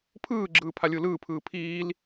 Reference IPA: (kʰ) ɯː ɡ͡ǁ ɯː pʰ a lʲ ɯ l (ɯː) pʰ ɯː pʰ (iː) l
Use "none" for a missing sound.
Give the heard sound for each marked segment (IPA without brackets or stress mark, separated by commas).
pʰ, ɯː, iː